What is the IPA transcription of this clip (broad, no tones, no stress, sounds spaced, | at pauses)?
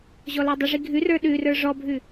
ʑ ɔ l a dˤ ə ʐ i ɡʱ ʉ r ə˞ ɗ ʉ r ə˞ ʐ ɔ bʱ ʉ